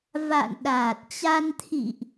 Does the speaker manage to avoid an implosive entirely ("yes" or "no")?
no